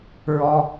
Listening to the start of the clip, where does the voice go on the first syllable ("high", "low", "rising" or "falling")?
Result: high